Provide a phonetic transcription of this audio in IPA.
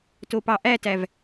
t o p ɑ ʔ æ t æ v

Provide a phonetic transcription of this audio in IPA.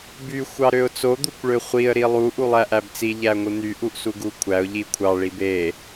b y xʷ ɑ ɾ ø ʊ̯ t͡s o d̪ u kʷ ɭ ø χʷ i ə̯ ɾ i lˠ u ʔ u lˠ æ ʔ æ b t͡s i ʎ æ ŋʷ ɯ n̪ y ʔ u ʔ s u ɡ u kʷʰ æ ʊ̯ ʎ i kʷʰ ɑ ɭ i b e

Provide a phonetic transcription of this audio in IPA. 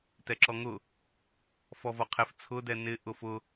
t ɛ ǁ ɔ ŋ ʊ | f ɔ v ɔ qʰ ɪ f t͡sʰ ʊ d ɛ n ɪ ʔ ʊ f ʊ

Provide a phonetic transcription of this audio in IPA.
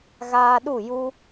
ɣ aː˧ ɗ u˦˨ j u˦

